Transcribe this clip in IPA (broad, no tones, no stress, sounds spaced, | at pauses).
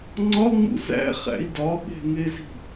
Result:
ŋ͡ǀ ɒ ŋ͡m ṵ z æ̰ χ æ̰ i̯ d ɒ ɓ e̤ ŋ e z i̤